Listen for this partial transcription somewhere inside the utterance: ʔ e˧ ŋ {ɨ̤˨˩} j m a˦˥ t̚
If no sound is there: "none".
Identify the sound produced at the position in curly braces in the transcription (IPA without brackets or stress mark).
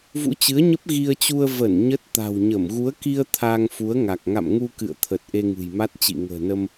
ɨ̤˨˩